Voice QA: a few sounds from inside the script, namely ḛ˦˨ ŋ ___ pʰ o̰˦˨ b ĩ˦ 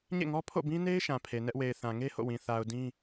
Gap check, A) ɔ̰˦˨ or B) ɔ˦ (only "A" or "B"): B